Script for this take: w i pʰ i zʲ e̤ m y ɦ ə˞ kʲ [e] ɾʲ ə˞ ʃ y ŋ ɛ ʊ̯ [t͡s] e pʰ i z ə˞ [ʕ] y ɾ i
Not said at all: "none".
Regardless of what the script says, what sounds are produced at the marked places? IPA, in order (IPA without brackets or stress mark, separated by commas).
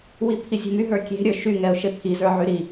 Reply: e̤, ʃ, ʕ